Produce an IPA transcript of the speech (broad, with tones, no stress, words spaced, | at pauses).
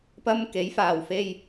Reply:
pɐ˥mke˨˥jfaː˨˩w fe˧j